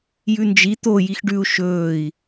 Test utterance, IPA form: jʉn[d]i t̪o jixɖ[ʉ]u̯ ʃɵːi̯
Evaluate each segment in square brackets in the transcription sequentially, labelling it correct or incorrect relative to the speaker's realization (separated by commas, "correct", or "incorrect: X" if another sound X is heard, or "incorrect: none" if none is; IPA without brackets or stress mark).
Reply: incorrect: d͡ʒ, correct